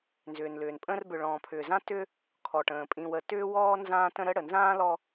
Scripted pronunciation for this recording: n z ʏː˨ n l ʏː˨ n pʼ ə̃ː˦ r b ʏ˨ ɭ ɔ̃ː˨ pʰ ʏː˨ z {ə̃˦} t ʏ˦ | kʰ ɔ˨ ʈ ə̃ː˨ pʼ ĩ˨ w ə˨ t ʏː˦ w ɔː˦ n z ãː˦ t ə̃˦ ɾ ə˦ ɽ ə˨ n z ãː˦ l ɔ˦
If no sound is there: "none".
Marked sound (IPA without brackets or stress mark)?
ã˦